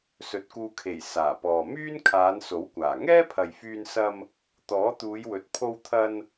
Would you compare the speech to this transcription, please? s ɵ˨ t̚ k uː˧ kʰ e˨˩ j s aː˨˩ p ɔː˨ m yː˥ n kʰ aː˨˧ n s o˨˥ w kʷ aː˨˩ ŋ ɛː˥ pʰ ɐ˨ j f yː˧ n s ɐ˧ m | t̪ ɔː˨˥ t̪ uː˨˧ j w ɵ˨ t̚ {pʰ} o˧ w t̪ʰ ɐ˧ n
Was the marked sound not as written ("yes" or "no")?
no